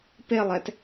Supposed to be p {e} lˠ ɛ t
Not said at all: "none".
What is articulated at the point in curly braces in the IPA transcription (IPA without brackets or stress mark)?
e